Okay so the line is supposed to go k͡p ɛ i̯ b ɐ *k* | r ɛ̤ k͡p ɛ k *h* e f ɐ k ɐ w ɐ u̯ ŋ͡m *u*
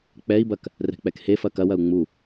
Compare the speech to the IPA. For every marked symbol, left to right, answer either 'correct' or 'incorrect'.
correct, correct, correct

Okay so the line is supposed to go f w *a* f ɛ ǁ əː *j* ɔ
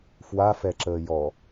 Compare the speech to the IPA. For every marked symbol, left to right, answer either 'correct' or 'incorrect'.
correct, correct

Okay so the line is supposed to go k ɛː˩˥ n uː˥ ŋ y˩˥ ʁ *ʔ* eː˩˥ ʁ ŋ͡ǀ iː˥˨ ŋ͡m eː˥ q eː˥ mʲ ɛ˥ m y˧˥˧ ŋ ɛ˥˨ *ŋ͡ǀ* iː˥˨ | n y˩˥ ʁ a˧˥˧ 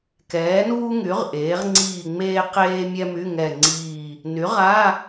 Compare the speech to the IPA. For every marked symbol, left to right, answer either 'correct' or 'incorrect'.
correct, correct

